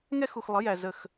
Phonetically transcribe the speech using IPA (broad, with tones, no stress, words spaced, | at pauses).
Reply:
ŋɛ˦xu˨xlˠə˩˥ jæ˨ zə˥˩x